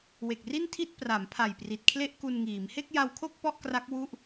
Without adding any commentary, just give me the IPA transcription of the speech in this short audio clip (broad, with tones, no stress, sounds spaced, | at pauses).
w e˨˩ k̚ r i˥˩ n tʰ i˥˩ t̚ p r a˩˦ m pʰ a˨˩ j p r i˨˩ t̚ kʰ l e˥˩ ʔ k u˧ n ŋ iː˩˦ m h e˥˩ k̚ j a˧ w kʰ o˥˩ k̚ p ɔ˥˩ ʔ k r a˦˥ k̚ w u˥˩ ʔ